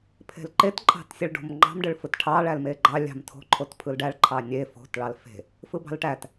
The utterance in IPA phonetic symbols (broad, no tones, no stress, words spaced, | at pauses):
pʰe̤lǃet ǃʼɑ̤tsʲeɭɖo̤mŋ͡ǃɑ̤m ɖɯɭfɯtʈʰɑ ɭælmeɡ͡ǃɑ lʲɑ̤mtʰo̤ ǃʰotpʰɯlɖæɭ ǃʰɑnʲe fo̤t ɭɑlfe̤ | fɯbɑ̤lʈæt